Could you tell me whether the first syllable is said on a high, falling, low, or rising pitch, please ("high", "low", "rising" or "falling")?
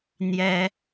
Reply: high